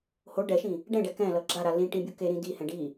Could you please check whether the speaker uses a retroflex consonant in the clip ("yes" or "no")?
yes